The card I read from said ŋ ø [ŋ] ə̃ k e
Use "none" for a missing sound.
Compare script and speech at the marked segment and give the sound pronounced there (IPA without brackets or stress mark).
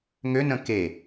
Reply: n